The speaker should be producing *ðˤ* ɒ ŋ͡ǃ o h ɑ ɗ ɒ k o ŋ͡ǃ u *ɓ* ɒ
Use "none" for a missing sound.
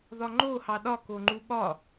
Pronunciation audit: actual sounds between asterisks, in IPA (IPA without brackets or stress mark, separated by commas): ð, ɓ